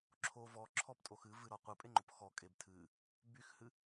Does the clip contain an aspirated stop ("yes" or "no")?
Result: yes